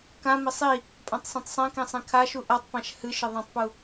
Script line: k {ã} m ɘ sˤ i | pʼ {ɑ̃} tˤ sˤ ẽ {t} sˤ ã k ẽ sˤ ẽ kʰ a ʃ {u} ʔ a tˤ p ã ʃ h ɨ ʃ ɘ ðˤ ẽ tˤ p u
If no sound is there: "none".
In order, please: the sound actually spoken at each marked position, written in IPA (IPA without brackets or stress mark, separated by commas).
ã, ã, t, u